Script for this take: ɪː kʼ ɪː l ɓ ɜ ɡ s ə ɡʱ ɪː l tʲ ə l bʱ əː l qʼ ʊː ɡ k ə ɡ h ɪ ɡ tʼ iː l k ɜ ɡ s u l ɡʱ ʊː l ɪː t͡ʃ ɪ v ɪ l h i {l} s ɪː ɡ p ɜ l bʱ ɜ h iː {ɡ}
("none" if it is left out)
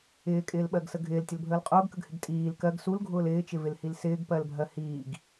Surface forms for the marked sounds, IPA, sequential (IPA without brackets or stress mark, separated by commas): l, ɡ